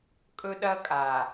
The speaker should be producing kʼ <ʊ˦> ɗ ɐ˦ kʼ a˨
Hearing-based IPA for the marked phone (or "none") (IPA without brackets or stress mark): ɵ˦